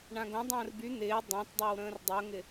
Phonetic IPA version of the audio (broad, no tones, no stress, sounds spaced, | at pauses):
ɳ ã ɡ õ dˤ ə̃ː r b y n̪ ɪː dˤ ã t dˤ o w ɾ ə̃ː r dˤ o ŋ ɪ